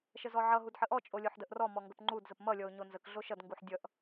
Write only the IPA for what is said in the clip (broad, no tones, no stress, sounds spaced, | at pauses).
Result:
ʃ ə z ɔ ʕ ʌ ɦ u d ħ ə ʔ ɔ t͡ʃʼ o lʲ o ħ d ə ʔ r ɔ m ɔ ŋ ɡ ə p ŋ͡ǃ u d z ə p m ʌ lʲ ɔ ʊ̯ ɲ o n z ə k ɮ o ʃ ʌ d ŋ ɡ u ħ dʲ ʌ ʔ